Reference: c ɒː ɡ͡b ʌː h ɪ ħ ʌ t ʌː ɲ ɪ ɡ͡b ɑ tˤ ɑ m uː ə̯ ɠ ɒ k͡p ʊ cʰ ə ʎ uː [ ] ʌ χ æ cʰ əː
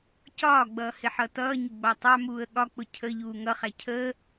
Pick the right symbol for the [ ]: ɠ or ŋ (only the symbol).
ŋ